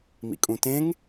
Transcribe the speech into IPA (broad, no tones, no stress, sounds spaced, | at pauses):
m ḭ kʼ ũ t ẽ ŋ